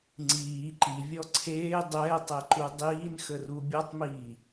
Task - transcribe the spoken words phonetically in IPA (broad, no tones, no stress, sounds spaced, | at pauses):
ŋ͡ǀ iː ǃ i vʲ ɔ ǀʰ eː dˤ ɛː tˤ ɛ ǃ u dˤ iː n x ə r u bʲ ɔ tˤ m iː